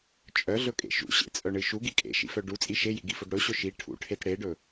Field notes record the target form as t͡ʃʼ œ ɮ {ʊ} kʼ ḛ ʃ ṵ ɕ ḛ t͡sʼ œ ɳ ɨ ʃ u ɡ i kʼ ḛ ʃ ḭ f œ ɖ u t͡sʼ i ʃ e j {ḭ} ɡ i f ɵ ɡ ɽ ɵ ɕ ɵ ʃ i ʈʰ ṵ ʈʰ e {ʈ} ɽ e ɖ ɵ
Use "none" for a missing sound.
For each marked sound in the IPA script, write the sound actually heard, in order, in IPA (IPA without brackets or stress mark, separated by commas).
ɵ, ḭ, t